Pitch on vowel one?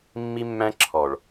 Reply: high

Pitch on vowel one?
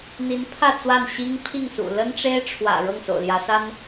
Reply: rising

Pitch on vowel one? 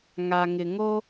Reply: low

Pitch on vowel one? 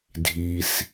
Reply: low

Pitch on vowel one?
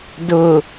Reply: low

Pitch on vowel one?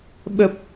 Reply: low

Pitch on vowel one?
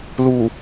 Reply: low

